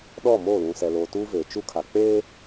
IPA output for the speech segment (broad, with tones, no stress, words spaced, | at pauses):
ɗɔ˦˨mo˦˨ lũ˨sɛ˨loː˨ tuː˦veː˨ t͡ʃu˦kʰa˨ k͡peː˦